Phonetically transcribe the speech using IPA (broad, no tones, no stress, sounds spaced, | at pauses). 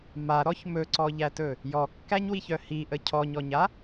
m a ɾ ɔ ç m ɵ ǀ ɔ ʎ æ t ɵ | j ɔ kː æ ɲ w i ç œ h i ʔ ə cʰ ɔ ɲ ɔ ɲ a